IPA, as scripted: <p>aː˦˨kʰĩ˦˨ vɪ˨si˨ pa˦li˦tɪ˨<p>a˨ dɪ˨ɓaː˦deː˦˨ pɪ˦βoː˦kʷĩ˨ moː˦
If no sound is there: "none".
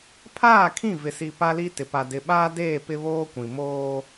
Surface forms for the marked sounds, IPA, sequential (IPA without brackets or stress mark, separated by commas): pʰ, p